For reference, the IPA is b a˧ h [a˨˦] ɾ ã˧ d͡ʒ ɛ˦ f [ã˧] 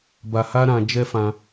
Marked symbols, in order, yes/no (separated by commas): no, yes